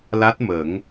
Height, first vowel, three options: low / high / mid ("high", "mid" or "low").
low